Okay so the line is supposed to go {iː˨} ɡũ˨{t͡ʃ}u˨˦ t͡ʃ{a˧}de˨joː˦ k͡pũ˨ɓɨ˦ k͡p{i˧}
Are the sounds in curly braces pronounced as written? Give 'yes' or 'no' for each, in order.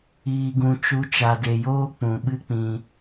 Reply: yes, yes, no, no

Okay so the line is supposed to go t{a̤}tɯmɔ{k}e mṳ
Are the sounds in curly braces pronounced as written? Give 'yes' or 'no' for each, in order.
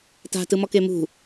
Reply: yes, yes

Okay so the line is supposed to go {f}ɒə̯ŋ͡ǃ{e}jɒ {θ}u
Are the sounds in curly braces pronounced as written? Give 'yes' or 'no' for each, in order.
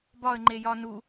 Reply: no, yes, no

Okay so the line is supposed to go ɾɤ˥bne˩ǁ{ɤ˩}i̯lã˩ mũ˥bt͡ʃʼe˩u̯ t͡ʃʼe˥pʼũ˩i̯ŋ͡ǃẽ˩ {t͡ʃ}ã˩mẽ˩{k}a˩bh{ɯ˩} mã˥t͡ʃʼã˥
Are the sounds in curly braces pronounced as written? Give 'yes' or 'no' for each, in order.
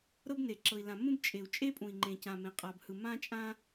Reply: yes, no, no, yes

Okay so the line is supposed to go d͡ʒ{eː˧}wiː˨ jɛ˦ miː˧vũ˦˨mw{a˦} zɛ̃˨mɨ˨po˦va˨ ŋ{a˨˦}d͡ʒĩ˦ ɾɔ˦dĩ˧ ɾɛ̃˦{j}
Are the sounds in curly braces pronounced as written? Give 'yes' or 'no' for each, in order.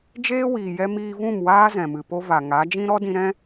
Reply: no, no, yes, no

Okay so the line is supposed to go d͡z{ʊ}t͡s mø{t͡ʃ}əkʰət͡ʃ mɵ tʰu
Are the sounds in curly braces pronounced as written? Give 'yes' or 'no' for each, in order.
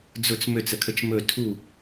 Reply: yes, no

